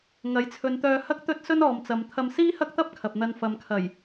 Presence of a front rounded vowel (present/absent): present